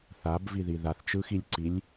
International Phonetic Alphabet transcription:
θ a b v i ð i ð a θ t͡ʃ ɯ x i lʲ ǀ i lʲ

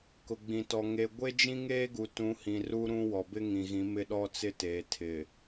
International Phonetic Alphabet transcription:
k ʊ˨ ɡ͡b ĩ˨ t ɔ˨ ŋ e˨ ɡʷ e˦ d͡ʒ ĩ˦ ŋ eː˦ ɡ u˨ t ũ˨˦ h ĩ˨ r u˦ ɾ ũ˦ w ɔ˨ b ɪ˦ ŋ ĩ˨ ɣ ĩ˨˦ m ɪ˦ ɗ ɔ˦ t͡s ɪ˦ t eː˨ tʰ ɪ˨

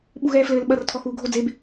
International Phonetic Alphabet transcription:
ɓ u ɣ ɛː f l ɘː l ɓ ɐ r tʰ ɔ x uː ɡʱ o d͡z e b

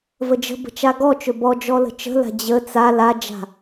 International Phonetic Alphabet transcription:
v ə d͡ʒ ə̤ b ə̤ t͡ʃ a ɡ ɔ t͡ʃ ɵ b ɔ d͡ʒ ɔ l ə̤ t͡ʃ ə̤ l a̤ d͡ʑ ə t͡s a l a d͡ʒ a̤

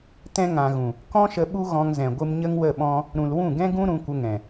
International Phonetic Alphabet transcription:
t ɛ̃˧ ŋ ã˨ ɣ ũ˨ | k ɔ̃˦ ʃ ə˧ ɓ u˦ ɣ ɔ̃˧ ŋ z ɛ̃˨ ɡʷ ɨ˧ m ɲ ə˦ ŋ w ə˦˨ ɓ ɔ̃˦ | ɾ ũ˨ l w ũ˦˨ ɡ ɛ̃˦ ɡ ũ˦ ɾ ũ˧ kʷ ə˧ ŋ ɛ̃˨

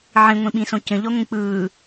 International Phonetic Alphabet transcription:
ʕ ĩ ŋʷ ĩ ɓ ĩ s õ c ə̃ ʎ ɔ ŋʷ ĩ k͡p ɯː

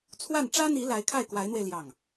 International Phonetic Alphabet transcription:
t͡sʰ w a˥˩ n ʈ͡ʂ ä˥ n̪ i˧˥ l a˧˥ ɪ̯ kʰ a˥˩ ɪ̯ k w a˧˥ ɪ̯ n̪ w e˧ ɪ̯ l j ɑ˥˩ ŋ

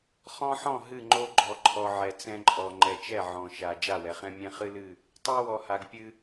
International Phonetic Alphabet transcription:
χ ɔ̃˦ ħ ɔ̃˦˨ ɦ ɨ˦˨ ŋ͡ǃ o˦ ɡ͡ǃ ɔ˨ ǃʰ ɔ˨ ʕ ɛ˨ t͡s ɛ̃˦ ǃʼ ɔ˨ ŋ͡ǃ ɛ˨ t͡ʃ ɛ˦˨ ʕ ɔ̃˨ ʃ a˨ d͡ʒ a˦˨ w ɛ˨ χ ɛ̃˦ mʲ ɛ̃˦ χ ɨ˦ l ɨ˦˨ | tˤ ɛ˦ w ɔ˨ h a˨ ɡ pʲ ɨ˦

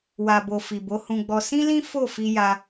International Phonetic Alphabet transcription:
w a˨ b o˨ f i˨ b o˨˦ h ũ˧ ɡ͡b ɔ˧ s ĩ˦ l ĩ˦ f o˦˨ f i˧ j a˧

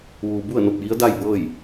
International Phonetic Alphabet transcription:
ʋ uː˩ b u˥˨ ə̯ n o˧˩ p̚ j i˧˥ ə̯ d a˥˨ j b ɤː˥˨ j

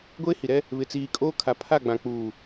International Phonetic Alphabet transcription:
ɡʷ eː˦ h i˨ ɾ ɛ˦ | β ɪ˨ t͡s iː˨ kʼ oː˦ kʰ a˨ pʰ a˦˨ ɡ͡b ã˨ k͡p uː˨

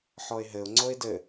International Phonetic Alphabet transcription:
ħ ɔ ɪ̯ ɦ ɘ ʊ̯ ŋ͡ǀ o ɪ̯ d ɘ

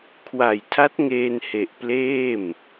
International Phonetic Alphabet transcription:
kʰ w a˨˩ j tʰ a˦˥ t̚ ŋ eː˧ n h e˨˩ ʔ p l eː˥˩ m

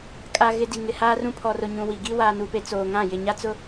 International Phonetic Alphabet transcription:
kʼ a˨ ɣ ɪ˨ d i˨ ŋ ɪ˨ h aː˦ r ũ˦˨ pʰ ɔ˨ r ʊ˨ ɲ ũ˨ w i˨ ɡ i˦ w aː˨ n u˨ p e˨ t͡s oː˨ ŋ ã˦˨ j ɪ˨ ɲ a˦ t͡s ʊ˦

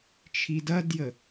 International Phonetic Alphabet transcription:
t͡ʃʰ i d ɐ d j ə

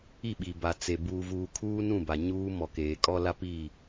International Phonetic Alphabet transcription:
i˦˨ ɓ i˨ b a˨ t͡s e˨ b uː˨ v uː˨ kʰ uː˦ n ũ˦˨ b a˨ ɲ uː˦ m ɔ˨ k eː˨ kʼ ɔ˦ l a˦ p i˦˨

